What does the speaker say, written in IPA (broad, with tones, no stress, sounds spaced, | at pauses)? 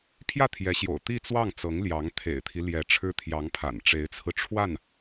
pʰ j ä˥˩ t̪ʰ j ɛ˧˥ ɕ j o̰˨˩ ʊ̯ t̪ i˥˧ t͡s w ɑ˥˩ ŋ t͡s ɤ˧˥ ŋ l j ɑ˧˥ ŋ t̪ʰ ḛ˨˩ ɪ̯ t̪ʰ i˦ l j ɛ˧˥ ʈ͡ʂʰ ɻ̩˥ t̪ʰ j ɑ˧˥ ŋ pʰ a̰˨˩ n ʈ͡ʂ e˧˥ ɪ̯ t͡sʰ ɹ̩˧ ʈ͡ʂʰ w a˥˩ n